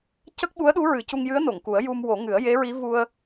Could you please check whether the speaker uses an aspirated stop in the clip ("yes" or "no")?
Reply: no